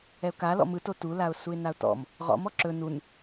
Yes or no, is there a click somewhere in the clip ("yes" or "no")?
yes